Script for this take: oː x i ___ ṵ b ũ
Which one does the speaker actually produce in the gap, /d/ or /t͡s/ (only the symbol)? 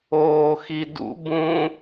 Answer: d